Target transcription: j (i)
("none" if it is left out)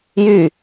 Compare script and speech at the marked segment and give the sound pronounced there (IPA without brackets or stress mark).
y